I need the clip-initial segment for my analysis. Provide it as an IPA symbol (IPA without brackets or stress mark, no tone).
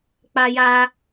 k͡p